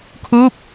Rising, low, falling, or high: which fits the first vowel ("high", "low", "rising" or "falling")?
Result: falling